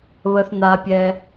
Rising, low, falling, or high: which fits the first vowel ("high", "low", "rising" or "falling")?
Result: low